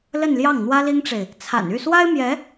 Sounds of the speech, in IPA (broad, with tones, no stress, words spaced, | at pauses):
lə˥˧nljɑ˥˩ŋ n̪wä˥li˥ŋʈ͡ʂe˨ɪ̯ | t͡sʰa̰˨˩ny˥˩swa˥ɪ̯ mjɛ˧˥